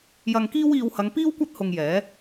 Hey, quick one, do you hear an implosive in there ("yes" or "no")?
no